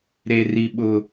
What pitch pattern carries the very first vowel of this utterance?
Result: low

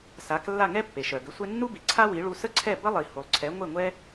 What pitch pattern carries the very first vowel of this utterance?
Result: rising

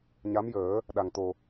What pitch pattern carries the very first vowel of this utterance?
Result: rising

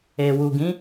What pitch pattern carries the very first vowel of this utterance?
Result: low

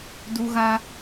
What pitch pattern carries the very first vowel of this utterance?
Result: high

